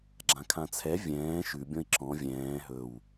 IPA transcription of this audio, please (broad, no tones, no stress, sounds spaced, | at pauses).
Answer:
ɡ͡ǁ ã kʰ ã t͡sʰ ɛ vʲ ɛ̃ː ʃ ʉ bʲ ɔ̃ i̯ ǁ ɔ̃ vʲ ɛ̃ː ɦ ɵ w